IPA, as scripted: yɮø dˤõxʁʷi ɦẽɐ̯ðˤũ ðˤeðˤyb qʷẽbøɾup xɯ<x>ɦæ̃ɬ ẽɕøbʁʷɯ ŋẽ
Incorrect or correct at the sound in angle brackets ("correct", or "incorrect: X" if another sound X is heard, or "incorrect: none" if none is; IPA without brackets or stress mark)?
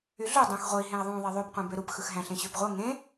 correct